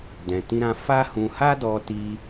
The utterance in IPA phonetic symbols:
dɛ̃˨tĩ˧ɾã˧ fa˦hũ˧ ha˦dɔ˧ti˧

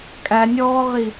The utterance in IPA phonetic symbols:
kʼænʲɔːʁi

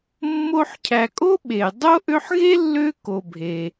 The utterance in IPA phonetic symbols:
mːo˦ħcʰæ˨ kʼo˥ɓe˩dˤo˥ ʔø˦ħɣe˥lːø˦ ko˨bʱe˩

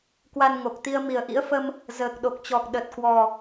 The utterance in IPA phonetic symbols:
kwa˧nŋo˨˩k̚t̪i˧ə̯ mi˨˩ə̯ʔḭ˧˥ə̯fə˧m | zəː˨˩k̚ɗo˨˩k̚t͡ɕɔ˨˩k̚ ɗə˨˩t̚kwɔ˨˩

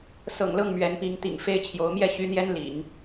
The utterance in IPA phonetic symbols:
sɤ̰˨˩ŋlɤ˥˩ŋ mɥɛ˧˥npi˧˥ŋt̪ḭ˨˩ŋ fe˥ɪ̯t͡ɕʰjo˧˥ʊ̯ mjɛ˥˩ɕy˧˥n̪jɛ˥n lḭ˨˩˦ŋ

